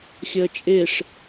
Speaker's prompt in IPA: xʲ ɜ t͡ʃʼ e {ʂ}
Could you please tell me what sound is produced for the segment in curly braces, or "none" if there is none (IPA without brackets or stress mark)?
ʂ